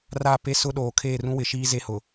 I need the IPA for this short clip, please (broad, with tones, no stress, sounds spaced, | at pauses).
r a˦˨ p e˦ s ʊ˦ ɗ oː˨ kʰ eː˦˨ r ũ˦ w ɪ˨˦ ʃ iː˦ z e˦ h ʊ˨